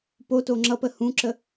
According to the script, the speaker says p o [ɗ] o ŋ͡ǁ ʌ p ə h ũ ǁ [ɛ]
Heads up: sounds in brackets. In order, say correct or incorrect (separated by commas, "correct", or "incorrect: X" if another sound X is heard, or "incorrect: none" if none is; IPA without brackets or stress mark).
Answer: incorrect: t, incorrect: ə